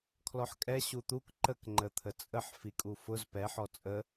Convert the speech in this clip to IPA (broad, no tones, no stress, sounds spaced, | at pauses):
kʰ l ɔ ħ kʼ ɛ ɕ u t̪ u k ǃ ə k ŋ͡ǃ ə t̪ʰ ə t͡sʼ ə ħ f i kʼ u f ʊ z p ɛ ħ ɔ t͡sʼ ə